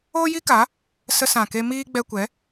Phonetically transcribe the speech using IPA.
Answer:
oː˦ji˦ka˨˦ | sə˧sã˨ke˧ miː˦ ɡ͡bɛ˧kʷɛ˨˦

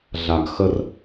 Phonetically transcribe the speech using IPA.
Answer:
ɮaɡxər

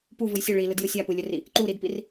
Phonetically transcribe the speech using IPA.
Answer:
puvɯj sʲɵ ɭilɯdjɯ sʲapɯlʲɵri | ǃuɾidpir

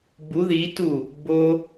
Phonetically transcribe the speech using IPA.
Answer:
bu ðitu | bo

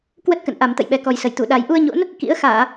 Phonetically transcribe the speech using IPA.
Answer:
kwə˦˥t̚kə̰˧˨nʔa˨˩m t̪ə̰˧˨jɓɛ˨˩kɔ˨˩jsə˧˩j t̪u˧˩ɗa˨˩j ʔu˧ə̯ɲo̰˧˥n | kḭ˧˥ə̯ xaː˧˩˨

